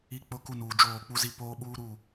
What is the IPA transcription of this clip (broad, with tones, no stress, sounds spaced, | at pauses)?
i˦ k͡p ʊ˦ k u˦ n uː˨ d͡ʒ oː˦˨ k͡p u˦ z i˦ p oː˦ ɓ uː˦ ɾ u˦˨